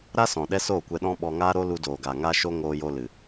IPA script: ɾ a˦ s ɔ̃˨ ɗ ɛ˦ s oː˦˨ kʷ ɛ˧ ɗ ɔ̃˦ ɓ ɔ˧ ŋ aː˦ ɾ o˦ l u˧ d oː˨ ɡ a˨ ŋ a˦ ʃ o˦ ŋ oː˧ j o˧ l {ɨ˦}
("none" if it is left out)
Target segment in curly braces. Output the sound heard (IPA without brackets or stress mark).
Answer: ɨ˨